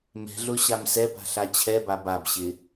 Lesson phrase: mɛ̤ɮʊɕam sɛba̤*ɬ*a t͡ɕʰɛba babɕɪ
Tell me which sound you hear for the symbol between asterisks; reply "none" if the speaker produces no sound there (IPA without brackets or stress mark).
ɬ